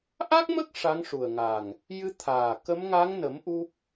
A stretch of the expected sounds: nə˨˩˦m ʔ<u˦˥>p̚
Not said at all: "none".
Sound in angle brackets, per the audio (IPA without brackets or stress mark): u˦˥